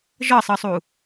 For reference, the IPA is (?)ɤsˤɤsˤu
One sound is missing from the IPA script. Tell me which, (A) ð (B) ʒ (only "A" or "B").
B